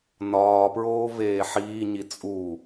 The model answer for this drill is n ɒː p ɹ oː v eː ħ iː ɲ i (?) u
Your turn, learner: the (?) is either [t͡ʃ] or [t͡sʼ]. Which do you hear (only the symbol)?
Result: t͡sʼ